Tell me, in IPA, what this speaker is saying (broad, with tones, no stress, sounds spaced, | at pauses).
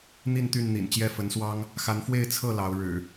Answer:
n̪ i˥˨ n t̪ y˥˨ n n̪ ḭ˨˩ n t͡ɕ j ɛ˥˨ f ə˨˦ n s w ɑ˦ ŋ | x a˨˦ n f w e˥˨ ɪ̯ t͡sʰ ɤ˥˨ l ɑ˨˦ ʊ̯ ɻ ɻ̩˨˩